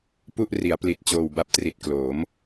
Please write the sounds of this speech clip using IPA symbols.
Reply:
p u˥˩ ʔ r i˩˦ a̯ p l i˨˩ t̚ t͡ɕ oː˨˩ w b a˦˥ p̚ t r i˨˩ t̚ k l oː˩˦ m

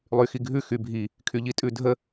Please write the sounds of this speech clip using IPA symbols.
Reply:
lˠ y x i ɡʱ ʉ x y bʱ i | kʰ y ʎ i tʼ ʉ dʱ ə

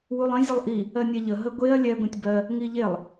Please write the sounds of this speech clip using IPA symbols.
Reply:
w u lˠ ə̃ zʲ ə lˠ ʔ i | ɜ nʲ ɛ ʎ ə ɦ ə ɡʷ e ɐ̯ lʲ ɛ ɡʷ ĩ tʲ b ɜ | ŋ i ʎ e lˠ

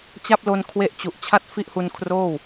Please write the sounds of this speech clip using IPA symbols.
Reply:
t͡ɕ a˥˩ p̚ l o˧ n kʰ w e˦˥ ʔ t͡ɕ u˨˩ ʔ t͡ɕʰ a˥˩ t̚ f i˥˩ ʔ h u˧ n kʰ r oː˥˩ w

